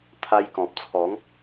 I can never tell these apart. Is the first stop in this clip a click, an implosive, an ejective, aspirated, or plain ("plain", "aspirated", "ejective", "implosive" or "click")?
aspirated